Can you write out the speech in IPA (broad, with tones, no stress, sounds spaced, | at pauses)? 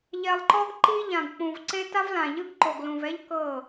ʎ ɛ˨ lˠ ǃ ɔ˦ ɡ ǃ i˦ ʎ ã˨ ɡ k͡p ũ˨ v ǀ e˦ t a˦ v l ã˨ ʎ ɯ˦ ɡ ǃ o˨ ɡ l ũ˨ v ɛ˦ ʎ k ɤ˦˨